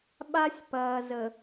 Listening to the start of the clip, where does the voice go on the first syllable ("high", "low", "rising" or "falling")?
high